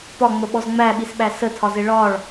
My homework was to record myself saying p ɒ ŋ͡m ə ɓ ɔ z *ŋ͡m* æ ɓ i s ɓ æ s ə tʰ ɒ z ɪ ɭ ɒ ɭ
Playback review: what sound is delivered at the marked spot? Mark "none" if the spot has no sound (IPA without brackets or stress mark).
ŋ͡m